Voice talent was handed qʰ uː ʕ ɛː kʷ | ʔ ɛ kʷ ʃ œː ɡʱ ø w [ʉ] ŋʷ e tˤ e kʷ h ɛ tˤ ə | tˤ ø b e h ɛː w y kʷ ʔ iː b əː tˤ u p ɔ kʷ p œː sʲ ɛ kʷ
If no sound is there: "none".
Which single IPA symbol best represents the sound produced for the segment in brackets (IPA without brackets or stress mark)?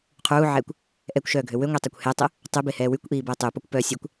ø